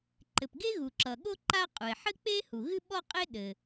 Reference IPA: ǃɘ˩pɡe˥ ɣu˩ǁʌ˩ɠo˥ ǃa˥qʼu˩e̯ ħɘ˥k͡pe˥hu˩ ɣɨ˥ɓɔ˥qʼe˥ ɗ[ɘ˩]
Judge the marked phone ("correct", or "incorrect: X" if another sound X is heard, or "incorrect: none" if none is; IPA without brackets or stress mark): correct